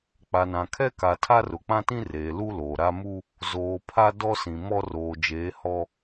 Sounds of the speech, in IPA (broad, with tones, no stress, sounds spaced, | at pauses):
k͡p a˨ n ã˨ kʰ ɛ˦ k a˨ tʰ a˦ r ʊ˨ k͡p ã˦ t ĩ˦ r eː˨ l u˦ l oː˨ ɾ a˦ m u˦ | z oː˨ pʰ a˦ d ɔ˦ s ĩ˨ m ɔ˦ r oː˨ d͡ʒ eː˨˦ h ɔ˦